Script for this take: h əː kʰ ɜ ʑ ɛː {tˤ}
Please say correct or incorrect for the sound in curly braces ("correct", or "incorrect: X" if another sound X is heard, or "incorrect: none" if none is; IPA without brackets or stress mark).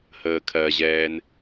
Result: incorrect: n